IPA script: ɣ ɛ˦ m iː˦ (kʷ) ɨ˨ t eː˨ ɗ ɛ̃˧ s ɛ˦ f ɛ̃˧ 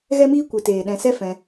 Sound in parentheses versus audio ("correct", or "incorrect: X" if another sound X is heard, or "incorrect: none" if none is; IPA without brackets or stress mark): correct